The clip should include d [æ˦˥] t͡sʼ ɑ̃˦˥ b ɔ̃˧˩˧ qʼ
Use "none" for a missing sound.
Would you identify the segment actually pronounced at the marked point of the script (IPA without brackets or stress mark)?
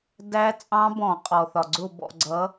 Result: æ˦˥